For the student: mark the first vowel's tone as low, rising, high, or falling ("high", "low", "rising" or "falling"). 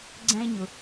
high